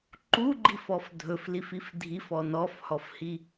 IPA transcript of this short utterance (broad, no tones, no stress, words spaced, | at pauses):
ǃuɡ͡ǃifɔf dʱɵflifif dʱifɔ nɔfhɔfhi